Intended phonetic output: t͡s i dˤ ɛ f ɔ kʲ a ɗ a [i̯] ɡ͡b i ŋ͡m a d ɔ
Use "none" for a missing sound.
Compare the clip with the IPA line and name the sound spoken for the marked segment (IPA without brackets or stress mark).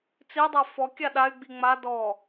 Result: y̯